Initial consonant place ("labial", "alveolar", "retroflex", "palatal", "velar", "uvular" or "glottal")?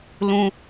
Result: alveolar